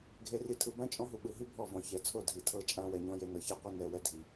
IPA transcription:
ɡʱ e˨ r i˨ tʰ ɯ˨ b ã˦ t͡ʃʼ ɔ̃˦ ɦ u˨ ɓ ɯ˨ ɦ i˦ bʱ ɔ˦˨ v ɔ̃˨ ç ɛ˨ t͡sʰ o˦˨ dʱ i˨ tʰ ɤ˦ t͡ʃʼ ã˦ w ɛ˨ ɲ ɔ̃˦ j e˦ n ɤ˨ ç ɛ˦ qʷ e˦ n ɛ˨ w ɛ˦ dʱ i˨

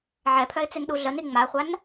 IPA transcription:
ʕ ɛ pʰ œ ɪ̯ t͡s e n ɗ u ɮ ə n i ŋ͡m a χʷ a n

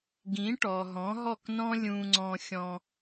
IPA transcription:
ɡ ĩ˩˥ ʈ ɔ˩ ɦ ɔ̃˩˥ ɦ ɔ˥˩ k n ɔ̃˥ lʲ ũ˧ ŋ͡ǀ ɔ̃˧ xʲ ɔ̃˧

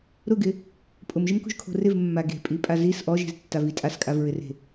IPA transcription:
ɾ ʊ ɡ ɪ | pʼ ʊ m ʒ ɪ m k ṳ ʒ kʰ o̤ r ɪ v mː a ɡ e̤ pʼ i pʼ a z i s ʔ ɔ ʒ e̤ z tː a v i tʼ a s kʼ a v ɹ ɪ r e̤

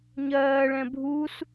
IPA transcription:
ɲ ɜː ɭ ɛ̃ bʱ u s

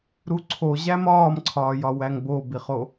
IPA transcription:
ɾ u ǀʰ o ʑ æ m ɒː m ǀʰ ɒː j ɒ w æ ŋ b o b i χ o

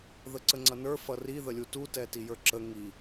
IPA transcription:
ð ə ǀ ə ŋ͡ǀ ʌ n ə˞ f ʌ r i ð ə lʲ u t u t ɛ t i j ə˞ ǁ ə ŋ i

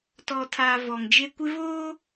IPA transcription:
t ɔ˨ tʰ a˨ v ɔ˨ ŋ d͡ʒ e˦ kʷ ɪ˦ v oː˦

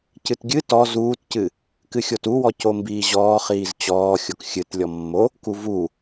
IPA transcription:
c ɨ t ɡʲ ɨ t ɔ z uː t c ɨ | k ɨ xʲ o t u w ɔ c o m b iː ʑ ɔː χ iː z t͡ɕ ɔː xʲ o k xʲ ɨ t lʲ ɔ mː o | k u v u

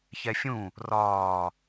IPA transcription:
ç ɛ fʲ ũ | r ɒː

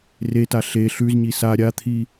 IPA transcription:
r e t a ɬ e ɬ ʉ z ɲ i s a ɾʲ a t̪ʰ i

